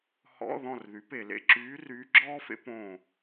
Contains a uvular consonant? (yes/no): no